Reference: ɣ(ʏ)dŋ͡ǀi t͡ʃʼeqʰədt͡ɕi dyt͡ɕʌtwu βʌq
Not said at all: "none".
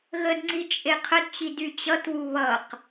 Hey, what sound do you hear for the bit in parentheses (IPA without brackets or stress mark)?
ə